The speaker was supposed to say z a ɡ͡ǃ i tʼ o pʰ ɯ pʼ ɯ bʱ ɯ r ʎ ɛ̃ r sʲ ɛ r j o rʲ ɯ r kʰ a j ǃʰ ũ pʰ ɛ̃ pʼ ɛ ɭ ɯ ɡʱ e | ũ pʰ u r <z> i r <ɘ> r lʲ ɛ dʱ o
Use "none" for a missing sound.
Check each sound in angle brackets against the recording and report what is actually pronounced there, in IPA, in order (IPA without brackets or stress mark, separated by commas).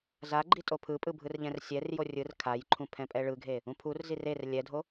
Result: z, e